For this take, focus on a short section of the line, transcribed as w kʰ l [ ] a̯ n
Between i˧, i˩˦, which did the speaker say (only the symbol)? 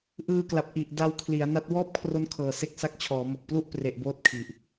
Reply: i˩˦